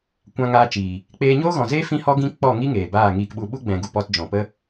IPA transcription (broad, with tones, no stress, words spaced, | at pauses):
kʷã˧ŋaː˧t͡ʃiː˨ | k͡peː˧ɲoː˦ɣɔ̃˨zeː˦ fĩ˦hɔ˦ɡĩ˦ k͡pɔ˦˨ŋi˦ ŋeː˨baː˦˨ŋiː˧kɓu˧ ɓu˦ɡ͡bɛ̃˨ɡu˨ pɔ˧td͡ʒɔ̃˨ pə˦